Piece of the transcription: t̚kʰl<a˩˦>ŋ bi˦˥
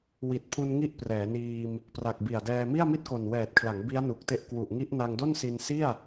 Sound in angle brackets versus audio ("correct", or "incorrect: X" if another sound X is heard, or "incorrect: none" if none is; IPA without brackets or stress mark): correct